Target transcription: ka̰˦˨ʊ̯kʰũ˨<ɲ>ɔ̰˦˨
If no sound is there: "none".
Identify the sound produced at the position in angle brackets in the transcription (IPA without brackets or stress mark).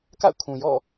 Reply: j